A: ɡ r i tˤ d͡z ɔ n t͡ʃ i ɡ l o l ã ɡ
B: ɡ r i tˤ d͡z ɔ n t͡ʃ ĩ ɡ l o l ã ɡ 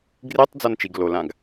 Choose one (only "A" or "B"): A